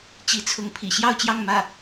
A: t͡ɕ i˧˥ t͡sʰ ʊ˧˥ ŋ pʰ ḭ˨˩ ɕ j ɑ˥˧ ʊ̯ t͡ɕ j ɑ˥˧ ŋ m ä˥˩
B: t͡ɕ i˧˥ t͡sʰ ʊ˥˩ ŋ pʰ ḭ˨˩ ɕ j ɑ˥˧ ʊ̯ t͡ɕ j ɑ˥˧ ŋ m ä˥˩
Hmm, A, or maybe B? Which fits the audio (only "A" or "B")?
A